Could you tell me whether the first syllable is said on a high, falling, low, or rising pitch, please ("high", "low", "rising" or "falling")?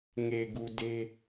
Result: low